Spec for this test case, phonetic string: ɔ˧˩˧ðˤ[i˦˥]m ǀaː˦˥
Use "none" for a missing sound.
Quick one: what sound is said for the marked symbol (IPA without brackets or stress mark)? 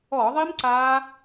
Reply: i˦˥